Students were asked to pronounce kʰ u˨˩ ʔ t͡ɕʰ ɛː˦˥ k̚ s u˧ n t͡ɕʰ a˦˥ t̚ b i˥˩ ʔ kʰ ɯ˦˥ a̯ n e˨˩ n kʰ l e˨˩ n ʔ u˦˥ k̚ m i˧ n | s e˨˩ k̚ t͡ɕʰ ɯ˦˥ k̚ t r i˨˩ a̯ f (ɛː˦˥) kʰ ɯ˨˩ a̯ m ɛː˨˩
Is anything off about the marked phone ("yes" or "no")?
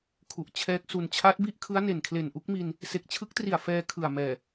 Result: yes